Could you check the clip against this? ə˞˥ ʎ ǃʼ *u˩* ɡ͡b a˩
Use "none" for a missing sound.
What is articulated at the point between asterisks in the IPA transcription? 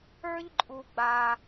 u˩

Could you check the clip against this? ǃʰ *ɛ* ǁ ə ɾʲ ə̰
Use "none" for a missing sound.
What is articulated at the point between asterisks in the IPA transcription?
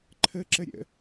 ə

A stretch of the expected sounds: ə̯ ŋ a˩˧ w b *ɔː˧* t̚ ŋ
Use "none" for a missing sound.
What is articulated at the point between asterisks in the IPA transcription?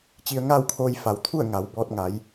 ɔː˧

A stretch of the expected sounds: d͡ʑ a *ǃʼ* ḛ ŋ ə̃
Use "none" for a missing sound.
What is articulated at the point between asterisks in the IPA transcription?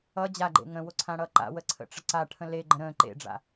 ɡ͡ǃ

